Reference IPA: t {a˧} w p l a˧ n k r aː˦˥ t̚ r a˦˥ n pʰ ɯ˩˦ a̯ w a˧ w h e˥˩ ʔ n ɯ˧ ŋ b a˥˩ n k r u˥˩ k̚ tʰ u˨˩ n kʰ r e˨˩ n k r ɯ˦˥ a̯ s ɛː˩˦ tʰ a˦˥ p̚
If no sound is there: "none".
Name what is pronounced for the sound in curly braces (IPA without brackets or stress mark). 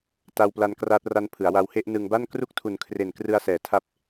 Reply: a˧